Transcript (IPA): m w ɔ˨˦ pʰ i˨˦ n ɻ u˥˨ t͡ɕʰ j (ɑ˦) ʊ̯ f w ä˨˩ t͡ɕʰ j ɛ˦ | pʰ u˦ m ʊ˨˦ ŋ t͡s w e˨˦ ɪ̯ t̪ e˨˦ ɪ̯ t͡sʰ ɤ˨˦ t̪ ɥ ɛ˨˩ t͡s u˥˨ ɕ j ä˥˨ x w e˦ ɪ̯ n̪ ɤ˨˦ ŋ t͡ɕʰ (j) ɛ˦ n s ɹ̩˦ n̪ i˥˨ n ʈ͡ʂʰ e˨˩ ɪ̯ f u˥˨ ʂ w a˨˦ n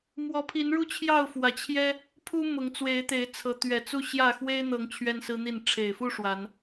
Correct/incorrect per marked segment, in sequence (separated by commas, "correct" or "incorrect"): incorrect, incorrect